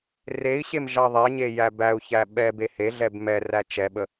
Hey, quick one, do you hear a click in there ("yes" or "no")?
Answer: no